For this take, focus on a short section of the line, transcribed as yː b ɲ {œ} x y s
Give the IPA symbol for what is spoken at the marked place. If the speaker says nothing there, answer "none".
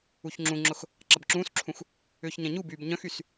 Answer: œ̃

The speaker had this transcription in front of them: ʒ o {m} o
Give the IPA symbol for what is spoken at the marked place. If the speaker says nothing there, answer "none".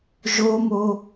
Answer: m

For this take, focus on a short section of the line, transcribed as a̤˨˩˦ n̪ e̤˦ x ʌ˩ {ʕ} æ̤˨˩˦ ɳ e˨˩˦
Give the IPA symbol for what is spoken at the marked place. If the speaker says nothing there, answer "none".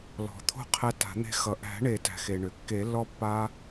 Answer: ʔ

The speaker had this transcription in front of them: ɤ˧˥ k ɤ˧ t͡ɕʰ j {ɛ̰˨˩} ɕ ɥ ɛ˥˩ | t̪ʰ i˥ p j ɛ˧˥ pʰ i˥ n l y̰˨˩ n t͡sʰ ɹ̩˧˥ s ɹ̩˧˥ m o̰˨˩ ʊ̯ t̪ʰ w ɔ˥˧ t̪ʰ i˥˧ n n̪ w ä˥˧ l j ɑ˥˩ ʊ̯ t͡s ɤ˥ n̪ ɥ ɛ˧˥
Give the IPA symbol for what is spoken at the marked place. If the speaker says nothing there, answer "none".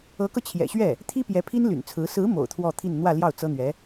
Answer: ɛ̰˨˩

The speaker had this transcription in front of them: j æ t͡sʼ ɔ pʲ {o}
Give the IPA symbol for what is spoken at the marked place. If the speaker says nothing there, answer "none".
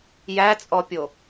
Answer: o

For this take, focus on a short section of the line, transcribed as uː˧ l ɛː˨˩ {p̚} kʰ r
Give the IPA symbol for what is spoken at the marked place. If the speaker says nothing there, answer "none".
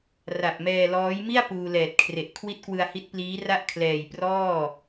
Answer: t̚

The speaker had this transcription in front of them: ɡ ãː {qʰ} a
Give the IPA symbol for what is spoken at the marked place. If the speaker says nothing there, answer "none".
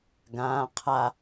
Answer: qʰ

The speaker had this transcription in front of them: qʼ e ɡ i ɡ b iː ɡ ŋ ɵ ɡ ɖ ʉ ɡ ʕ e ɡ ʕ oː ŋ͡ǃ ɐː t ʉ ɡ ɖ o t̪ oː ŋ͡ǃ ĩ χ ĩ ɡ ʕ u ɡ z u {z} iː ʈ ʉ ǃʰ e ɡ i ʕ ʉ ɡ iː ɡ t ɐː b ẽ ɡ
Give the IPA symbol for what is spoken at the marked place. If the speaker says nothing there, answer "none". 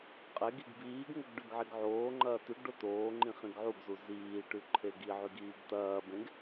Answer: z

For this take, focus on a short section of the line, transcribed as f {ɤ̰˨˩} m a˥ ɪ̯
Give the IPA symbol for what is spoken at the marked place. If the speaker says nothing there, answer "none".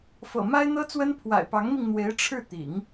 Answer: ɤ̰˨˩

